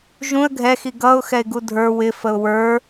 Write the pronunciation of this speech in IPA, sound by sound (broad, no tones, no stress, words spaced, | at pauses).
ʒũə̯ ɡʱɛxi ɡʌʊ̯ xɛɪ̯ɡudʱə˞ wɪfəʊ̯ wə˞